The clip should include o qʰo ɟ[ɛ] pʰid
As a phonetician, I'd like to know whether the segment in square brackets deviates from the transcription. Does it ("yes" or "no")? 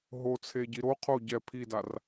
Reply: no